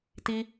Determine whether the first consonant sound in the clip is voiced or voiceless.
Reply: voiceless